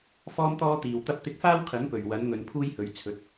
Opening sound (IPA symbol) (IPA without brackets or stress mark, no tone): f